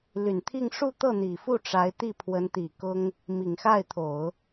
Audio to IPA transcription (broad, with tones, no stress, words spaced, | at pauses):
ly˨˩nt̪ʰi˥˧ŋ ʂu˥˧t̪ɤ˥˩n̪i˨˩fu˥˩ ʈ͡ʂa˧˥ɪ̯t̪i˥˩ pʰwə˧˥nt̪i˨˩ kʊ˥ŋ | mi˨˩ŋxa˥˩ɪ̯t̪ʰo˨˩˦ʊ̯